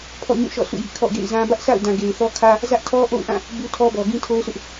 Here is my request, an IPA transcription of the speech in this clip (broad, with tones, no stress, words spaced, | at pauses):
pʰɔ̰˦˨ɲũ˦˨ʃɔ̰˦˨ sʰṵ˦˨jḭ˦˨ kʰɔ̰˦˨ɡḛ˦˨ɪ̯zã˦ bä˦ʔsa̰˦˨ʊ̯dã˨ ɡe˨ɪ̯θɔ˦kʰä˦ | zä˦ʔtʰɔ˦ʔo̰˦˨ʊ̯ʔã˦˨ | bu˦tʰɔ˦bɔ˨ ɡĩ˦tʰo˦ʊ̯sʰʊ˦ʔ